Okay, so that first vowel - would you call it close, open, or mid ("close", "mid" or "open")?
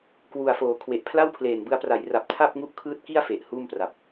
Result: close